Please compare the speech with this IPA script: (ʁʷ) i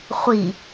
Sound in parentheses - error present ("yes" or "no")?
yes